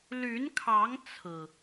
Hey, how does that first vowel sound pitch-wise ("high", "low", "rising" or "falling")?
rising